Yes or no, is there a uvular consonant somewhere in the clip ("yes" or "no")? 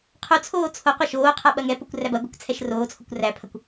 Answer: yes